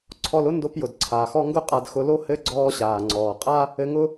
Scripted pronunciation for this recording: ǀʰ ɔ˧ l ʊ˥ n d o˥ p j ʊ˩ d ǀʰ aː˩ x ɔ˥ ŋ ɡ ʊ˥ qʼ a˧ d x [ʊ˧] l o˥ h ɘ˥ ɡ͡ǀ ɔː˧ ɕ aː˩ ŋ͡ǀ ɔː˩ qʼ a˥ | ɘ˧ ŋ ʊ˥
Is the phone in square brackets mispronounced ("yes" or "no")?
no